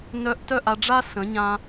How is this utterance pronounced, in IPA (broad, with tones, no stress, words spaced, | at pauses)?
nœ˧ʔtœ˦˨ʔ a˧ɖ͡ʐa˦ sə̃˨˦ɲã˧